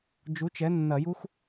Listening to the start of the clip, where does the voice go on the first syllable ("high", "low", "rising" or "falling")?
rising